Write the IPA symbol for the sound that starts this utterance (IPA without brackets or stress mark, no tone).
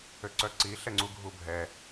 ø